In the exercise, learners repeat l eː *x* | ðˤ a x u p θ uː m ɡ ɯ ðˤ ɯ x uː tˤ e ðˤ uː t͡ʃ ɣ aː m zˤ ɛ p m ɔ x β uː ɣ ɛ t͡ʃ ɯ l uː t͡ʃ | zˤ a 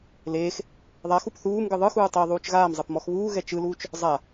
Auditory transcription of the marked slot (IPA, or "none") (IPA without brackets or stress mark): x